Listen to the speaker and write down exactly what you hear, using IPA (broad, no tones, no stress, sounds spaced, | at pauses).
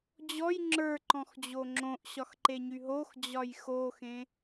d͡ʑ ɔ j ŋ͡ǁ ə˞ ǃ ɔ̃ x d͡ʑ o ŋ͡ǁ õ ʔ ɕ ɒ x ǃ e ɲ y ɦ o x d͡ʑ ɒ j x o x ẽ